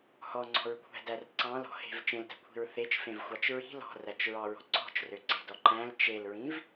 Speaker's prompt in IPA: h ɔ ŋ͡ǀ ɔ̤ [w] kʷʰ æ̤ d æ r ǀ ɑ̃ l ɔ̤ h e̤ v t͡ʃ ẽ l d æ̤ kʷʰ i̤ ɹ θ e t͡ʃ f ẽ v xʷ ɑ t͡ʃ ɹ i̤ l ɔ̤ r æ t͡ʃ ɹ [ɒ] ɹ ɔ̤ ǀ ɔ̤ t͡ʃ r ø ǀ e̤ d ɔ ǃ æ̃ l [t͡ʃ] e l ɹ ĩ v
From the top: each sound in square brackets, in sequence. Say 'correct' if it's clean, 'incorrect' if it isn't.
incorrect: ɹ, incorrect: ɑ, correct

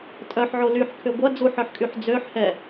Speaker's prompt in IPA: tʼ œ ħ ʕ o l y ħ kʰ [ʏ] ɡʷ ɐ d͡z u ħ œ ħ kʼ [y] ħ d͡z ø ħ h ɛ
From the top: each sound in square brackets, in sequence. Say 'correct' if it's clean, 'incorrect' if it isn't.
correct, correct

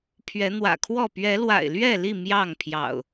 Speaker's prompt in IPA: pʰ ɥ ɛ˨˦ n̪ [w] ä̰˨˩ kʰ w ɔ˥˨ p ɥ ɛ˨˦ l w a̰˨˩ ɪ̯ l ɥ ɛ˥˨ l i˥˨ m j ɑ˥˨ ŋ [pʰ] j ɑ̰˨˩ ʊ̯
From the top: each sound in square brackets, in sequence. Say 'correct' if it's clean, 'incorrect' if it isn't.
correct, correct

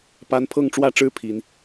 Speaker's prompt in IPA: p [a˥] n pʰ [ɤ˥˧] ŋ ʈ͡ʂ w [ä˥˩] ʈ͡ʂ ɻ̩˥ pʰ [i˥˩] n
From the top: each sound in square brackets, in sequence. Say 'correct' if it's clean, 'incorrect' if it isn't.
correct, correct, correct, incorrect: i˥

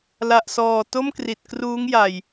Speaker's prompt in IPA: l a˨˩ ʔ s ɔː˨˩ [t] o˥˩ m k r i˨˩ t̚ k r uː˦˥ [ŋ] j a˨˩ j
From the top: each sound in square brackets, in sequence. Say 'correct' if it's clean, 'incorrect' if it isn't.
correct, correct

